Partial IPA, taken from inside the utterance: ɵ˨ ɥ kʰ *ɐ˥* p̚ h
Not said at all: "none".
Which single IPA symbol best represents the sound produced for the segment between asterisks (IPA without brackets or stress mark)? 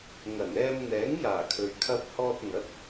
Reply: ɐ˧